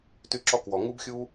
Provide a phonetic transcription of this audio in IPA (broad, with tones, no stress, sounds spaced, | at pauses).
t y˧ ǁ ɔ˧ k w ɔ˩ ŋ u˧ b xʲ u˧